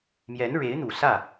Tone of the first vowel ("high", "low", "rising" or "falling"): rising